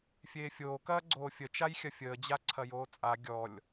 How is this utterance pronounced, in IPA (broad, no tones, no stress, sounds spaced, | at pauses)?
fʲ eː fʲ oː k ɐː ɡ͡ǀ oː fʲ ə t͡ʃ a j xʲ ɐ fʲ əː d͡ʑ a ǀʰ ɐ j oː t͡sʼ a ɡʲ ɔ lʲ